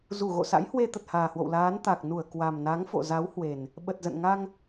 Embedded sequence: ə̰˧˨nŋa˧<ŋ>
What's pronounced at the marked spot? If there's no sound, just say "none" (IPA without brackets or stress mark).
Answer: ŋ